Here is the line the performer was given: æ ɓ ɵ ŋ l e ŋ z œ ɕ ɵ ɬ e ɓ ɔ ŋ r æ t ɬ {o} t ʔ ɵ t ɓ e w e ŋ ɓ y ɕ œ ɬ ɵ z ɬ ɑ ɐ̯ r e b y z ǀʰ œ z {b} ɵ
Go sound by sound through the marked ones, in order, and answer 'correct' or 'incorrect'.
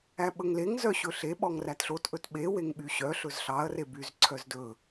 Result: correct, incorrect

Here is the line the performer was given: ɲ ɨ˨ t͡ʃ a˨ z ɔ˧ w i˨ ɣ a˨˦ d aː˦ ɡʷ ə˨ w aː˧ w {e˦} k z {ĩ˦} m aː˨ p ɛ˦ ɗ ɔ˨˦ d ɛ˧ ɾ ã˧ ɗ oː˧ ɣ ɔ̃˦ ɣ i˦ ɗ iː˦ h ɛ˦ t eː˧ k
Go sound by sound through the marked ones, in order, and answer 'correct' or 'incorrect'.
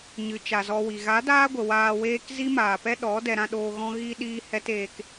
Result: incorrect, incorrect

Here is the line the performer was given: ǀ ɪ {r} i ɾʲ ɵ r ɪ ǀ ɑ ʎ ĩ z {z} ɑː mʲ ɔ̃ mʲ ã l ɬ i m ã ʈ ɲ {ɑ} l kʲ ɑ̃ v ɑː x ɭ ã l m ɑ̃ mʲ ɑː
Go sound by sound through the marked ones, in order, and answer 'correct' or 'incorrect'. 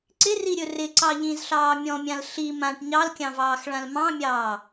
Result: correct, incorrect, correct

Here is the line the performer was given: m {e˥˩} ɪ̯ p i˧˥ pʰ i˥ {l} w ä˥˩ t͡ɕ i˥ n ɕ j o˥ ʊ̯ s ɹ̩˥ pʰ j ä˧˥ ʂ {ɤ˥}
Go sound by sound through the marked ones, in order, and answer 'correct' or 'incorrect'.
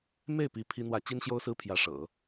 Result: correct, incorrect, incorrect

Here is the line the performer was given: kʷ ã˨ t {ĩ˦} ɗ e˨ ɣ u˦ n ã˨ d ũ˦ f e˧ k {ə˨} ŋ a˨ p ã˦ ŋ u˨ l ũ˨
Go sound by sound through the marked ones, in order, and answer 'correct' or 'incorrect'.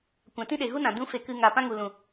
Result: correct, incorrect

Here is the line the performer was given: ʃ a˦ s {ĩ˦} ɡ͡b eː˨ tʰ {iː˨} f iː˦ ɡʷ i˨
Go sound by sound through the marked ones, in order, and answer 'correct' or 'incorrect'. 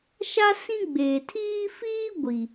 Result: correct, incorrect

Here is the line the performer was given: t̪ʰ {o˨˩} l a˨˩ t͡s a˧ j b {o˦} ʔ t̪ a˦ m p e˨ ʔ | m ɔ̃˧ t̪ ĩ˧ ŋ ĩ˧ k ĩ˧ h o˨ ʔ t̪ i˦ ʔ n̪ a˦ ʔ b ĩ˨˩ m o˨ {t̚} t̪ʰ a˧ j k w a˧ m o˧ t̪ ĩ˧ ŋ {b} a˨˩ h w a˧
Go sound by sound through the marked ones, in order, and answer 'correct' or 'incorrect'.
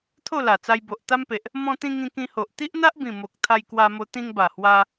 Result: incorrect, incorrect, incorrect, correct

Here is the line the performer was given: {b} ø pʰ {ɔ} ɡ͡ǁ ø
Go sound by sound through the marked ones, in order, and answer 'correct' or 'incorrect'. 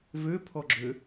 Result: incorrect, correct

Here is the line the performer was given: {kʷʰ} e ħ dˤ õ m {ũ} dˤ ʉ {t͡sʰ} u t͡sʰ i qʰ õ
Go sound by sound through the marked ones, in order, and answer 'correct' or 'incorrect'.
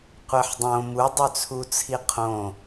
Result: incorrect, incorrect, correct

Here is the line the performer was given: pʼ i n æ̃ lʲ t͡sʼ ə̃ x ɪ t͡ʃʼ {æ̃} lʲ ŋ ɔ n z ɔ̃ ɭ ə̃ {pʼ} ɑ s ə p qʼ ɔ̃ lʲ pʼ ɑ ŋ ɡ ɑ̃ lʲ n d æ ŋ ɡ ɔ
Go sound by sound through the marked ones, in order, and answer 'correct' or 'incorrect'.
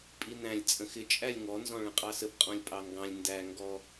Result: incorrect, incorrect

